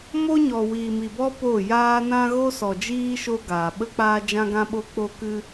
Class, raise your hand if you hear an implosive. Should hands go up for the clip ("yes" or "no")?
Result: yes